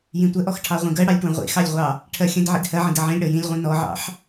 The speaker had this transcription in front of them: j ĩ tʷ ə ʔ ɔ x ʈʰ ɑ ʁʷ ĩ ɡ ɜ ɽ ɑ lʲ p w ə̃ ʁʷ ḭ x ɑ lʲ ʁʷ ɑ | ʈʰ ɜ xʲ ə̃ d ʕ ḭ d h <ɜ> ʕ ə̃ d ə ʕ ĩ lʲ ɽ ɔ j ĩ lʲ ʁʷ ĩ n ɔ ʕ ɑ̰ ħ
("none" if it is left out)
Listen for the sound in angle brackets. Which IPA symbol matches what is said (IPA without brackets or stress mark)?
ɜ